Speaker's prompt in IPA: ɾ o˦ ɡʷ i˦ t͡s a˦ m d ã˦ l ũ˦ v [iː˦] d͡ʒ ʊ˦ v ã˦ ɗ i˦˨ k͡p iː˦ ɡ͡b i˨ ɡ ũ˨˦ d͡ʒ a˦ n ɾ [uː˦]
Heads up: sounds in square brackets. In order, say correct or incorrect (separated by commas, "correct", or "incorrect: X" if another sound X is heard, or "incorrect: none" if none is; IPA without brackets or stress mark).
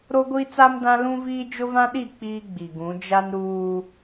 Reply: correct, correct